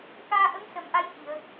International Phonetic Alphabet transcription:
k aː˧ ʔ ə˧˥ ŋ s ə˨˩˦ m ʔ a˧˥ j h i˨˩˨ ə̯

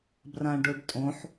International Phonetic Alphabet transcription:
b r ã ɖ ʊ ɖ tʼ õ ħ

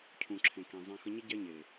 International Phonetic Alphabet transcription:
cʰ ũ˨ ǁʰ ẽ˨ k ẽ˨ zˤ ɛ̃˧ x ə˧ ɲ ə˦ ɟ ɛ˦ ɲ e˨

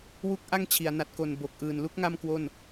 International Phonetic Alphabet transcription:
w u˥˩ k̚ ʔ a˥˩ ŋ t͡ɕʰ i˩˦ a̯ n a˨˩ t̚ k o˨˩ n b o˨˩ k̚ ʔ ɯː˨˩ n l u˦˥ k̚ ŋ a˥˩ m k w o˥˩ n

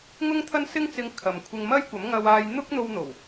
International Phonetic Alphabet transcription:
ŋ ʊ˥ ŋ t̪ʰ ɐ˥ n s ɪ˥ ŋ t͡s ɪ˧ ŋ kʰ ɐ˨ m kʷʰ ɪ˧ ŋ m ɐ˥ j kʷ ɐ˨˥ m ŋ ɐ˧ w aː˧ j n̪ ʊ˥ k̚ n̪ o˧ w n̪ o˨˩ w

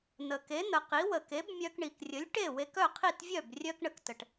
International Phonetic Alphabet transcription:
n̪ ə˩ k e˩˥ n̪ ə˩ q i˩˥ w ə˩ k e˩˥ b mʲ œ˧ k ɳ i˩ k rʲ ə˩˥ lʲ ʈ e˥˩ w e˧ k œ˥˩ qʰ i˥˩ t vʲ œ˥˩ b rʲ œ˥ k ɳ ə˧ k t ə˩ ʈ

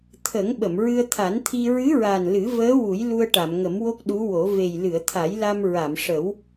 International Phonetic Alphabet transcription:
t̪ʰ ə˨˩˦ ŋ ɓ ə˨˩˨ m ɹ ɨ˧ ə̯ t̪ʰ a˨˩˦ n t̪ʰ i˧ ɹ ɨ˧˥ ɹ a˨˩ n l ɨ˨˩˦ v əː˧˥ w u˨˩˦ j l u˧ ə̯ ʈ a˨˩˨ m ŋ ə˨˩˦ m w o˦˥ k̚ ɗ u˧˥ w o˨˩˦ v e˨˩ j l ɨ˨˩˨ ə̯ t̪ʰ a˨˩˦ j l a˧ m ɹ a˨˩˨ m ʂ ə˨˩˦ w

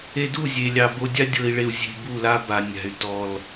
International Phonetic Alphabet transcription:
e˧ d u˦˨ zʲ e˨ lʲ ɑ˨ b o˧ dʲ a˦ dʲ ɤ˧ i̯ ɭ e˧ u̯ zʲ e̤˧ b u˦˨ l a˦ b a˨ nʲ a̤˨ y̯ t ɔ˨ l

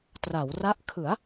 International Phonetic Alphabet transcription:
t r a˩˦ w r a˦˥ ʔ kʰ ɯ˩˦ a̯

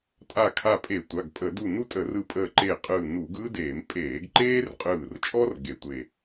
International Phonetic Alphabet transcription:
tʼ a˧˩ kʰ a˧˩ pʼ e˧˩˧ tʷ a˩˧˩ ɡ pʼ ə˧˩˧ d u˧˩ n u˥ tʼ ə˧˩˧ r ɯ˧˩ pʼ əː˧˩ ǃ e˧˩ qʼ ɯː˧˩ n uː˧˩˧ ɡ ɯː˥ d eː˧˩˧ m pʼ eː˧˩˧ ɡ ǃ eː˥ r qʼ ɯː˧˩ r t͡ʃʼ ɔ˥ r ɡ e˧˩˧ tʷ e˧˩

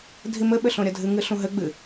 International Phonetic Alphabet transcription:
dʱ i m ɘ ɓ ɘ ɬ õ ɾʲ ɐ dʱ ɨ ŋ ɨ ɬ ũ ɦ ɘ ɡ͡b ɨ

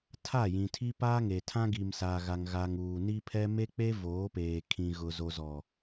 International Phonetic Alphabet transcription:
tʰ a˦˨ j ĩ˨ tʰ i˦ p aː˦ ŋ e˨ tʰ ã˦ ɡ i˨ m s a˨ ɣ a˨ ŋ ɣ a˨ ŋ uː˨ n i˦ pʰ ɛ˦ m e˦ k͡p e˦ v oː˨˦ p eː˨ kʰ ĩ˨ ɣ ʊ˨ z o˨ z ɔ˨

